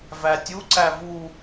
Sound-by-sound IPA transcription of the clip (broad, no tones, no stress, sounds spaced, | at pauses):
v æ tʲ u ǀ æ v u